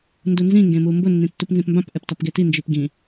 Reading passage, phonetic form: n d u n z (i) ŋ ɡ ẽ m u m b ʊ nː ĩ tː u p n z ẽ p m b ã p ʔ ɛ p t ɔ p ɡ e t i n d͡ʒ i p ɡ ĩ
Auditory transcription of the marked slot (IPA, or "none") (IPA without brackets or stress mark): ĩ